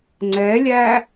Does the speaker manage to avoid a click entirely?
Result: no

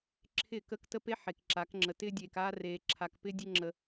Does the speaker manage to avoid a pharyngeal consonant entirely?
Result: no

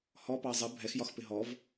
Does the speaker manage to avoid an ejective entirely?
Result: yes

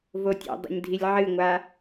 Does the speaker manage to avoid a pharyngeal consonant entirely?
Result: no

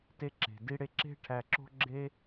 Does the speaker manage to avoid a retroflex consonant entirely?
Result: no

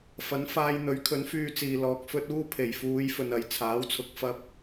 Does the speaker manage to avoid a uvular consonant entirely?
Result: yes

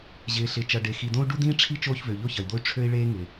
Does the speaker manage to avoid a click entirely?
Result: yes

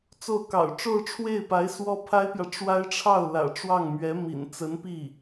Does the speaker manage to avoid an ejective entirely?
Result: yes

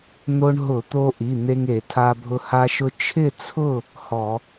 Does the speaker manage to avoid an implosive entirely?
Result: yes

